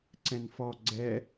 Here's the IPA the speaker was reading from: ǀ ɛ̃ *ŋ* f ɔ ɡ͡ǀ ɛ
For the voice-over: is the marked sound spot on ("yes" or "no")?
no